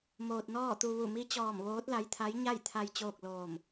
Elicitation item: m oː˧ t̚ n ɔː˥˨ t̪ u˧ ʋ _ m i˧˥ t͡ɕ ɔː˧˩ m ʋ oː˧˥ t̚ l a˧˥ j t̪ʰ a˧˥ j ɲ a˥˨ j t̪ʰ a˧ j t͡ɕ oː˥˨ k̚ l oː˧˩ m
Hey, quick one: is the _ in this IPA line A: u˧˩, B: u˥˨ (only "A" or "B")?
A